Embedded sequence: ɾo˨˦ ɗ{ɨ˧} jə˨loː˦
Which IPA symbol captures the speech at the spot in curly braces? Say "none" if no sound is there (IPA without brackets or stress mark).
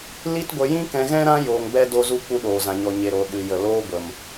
ɨ˧